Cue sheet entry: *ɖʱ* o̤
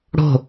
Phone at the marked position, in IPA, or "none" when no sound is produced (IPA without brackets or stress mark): ɽ